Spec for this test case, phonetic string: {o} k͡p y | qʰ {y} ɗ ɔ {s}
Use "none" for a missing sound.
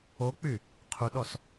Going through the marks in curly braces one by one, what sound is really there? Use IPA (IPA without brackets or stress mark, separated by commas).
o, u, s